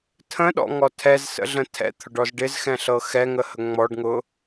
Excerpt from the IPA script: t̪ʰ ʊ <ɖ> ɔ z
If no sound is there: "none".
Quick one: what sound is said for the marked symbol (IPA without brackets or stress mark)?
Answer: ɖ